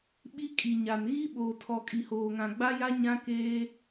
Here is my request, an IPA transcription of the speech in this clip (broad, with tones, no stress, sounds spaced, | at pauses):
ɓ i˦ kʼ i˨ ɲ a˨ n ɣ i˦ ɓ oː˨ tʰ ɔ˨ kʼ i˨ h oː˨ ŋ ã˨ ɡ͡b a˦ j a˦ ɲ ã˦ k eː˦